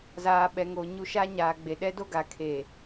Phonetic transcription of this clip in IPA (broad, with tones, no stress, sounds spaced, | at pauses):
z aː˨ ɓ ɛ˨ ŋ o˨ ɲ u˦ ʃ a˦ ɲ aː˨ ɡ͡b e˨ ɗ ɛ˦ d o˦ ɡ a˨ kʰ e˨